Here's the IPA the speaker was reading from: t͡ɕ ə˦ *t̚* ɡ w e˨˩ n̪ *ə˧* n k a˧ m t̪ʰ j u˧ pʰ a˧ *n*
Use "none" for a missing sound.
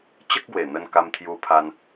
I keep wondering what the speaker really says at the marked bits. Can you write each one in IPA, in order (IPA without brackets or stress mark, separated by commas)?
k̚, ə˧, n